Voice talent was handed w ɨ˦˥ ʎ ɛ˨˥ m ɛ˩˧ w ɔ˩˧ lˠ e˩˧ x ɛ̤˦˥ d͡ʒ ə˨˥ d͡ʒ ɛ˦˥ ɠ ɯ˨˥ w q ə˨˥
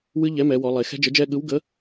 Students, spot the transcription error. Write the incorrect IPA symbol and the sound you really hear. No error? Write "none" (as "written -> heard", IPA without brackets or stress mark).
q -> ɡ